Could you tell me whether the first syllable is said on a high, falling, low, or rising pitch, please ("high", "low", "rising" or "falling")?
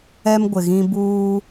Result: high